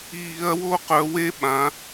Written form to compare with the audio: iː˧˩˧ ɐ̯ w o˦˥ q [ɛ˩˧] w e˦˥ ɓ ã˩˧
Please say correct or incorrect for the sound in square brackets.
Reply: incorrect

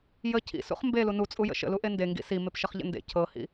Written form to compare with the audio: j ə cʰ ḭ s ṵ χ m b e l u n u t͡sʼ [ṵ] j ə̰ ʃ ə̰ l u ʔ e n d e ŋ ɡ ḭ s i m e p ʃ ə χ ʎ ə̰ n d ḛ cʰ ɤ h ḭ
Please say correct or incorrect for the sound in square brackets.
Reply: incorrect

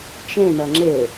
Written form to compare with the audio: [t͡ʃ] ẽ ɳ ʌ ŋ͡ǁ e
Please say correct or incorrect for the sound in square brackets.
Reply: correct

